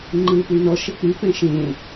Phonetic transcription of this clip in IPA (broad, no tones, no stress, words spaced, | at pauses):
ŋ͡ǃɯːpyːnɔ ʃek͡py pɛ̃ʃẽ